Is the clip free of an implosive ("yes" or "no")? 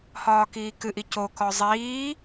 yes